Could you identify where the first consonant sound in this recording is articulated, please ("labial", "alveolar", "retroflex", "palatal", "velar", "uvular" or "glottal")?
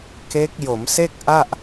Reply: velar